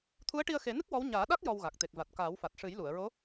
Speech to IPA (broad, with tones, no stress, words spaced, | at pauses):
t̪ʰu˧˥ə̯ʈi˧ə̯xe˨˩˦nɨ˦˥k̚ wɔ˧˥w ɲaː˨˩˦ɗa˦˥k̚ jɔ˧wɣa˨˩k̚ t̪e˨˩k̚va˨˩t̚ kaː˨˩˦wfa˨˩t̚ ʂɨ˨˩˦jlu˨˩˨ə̯ɹo˧˥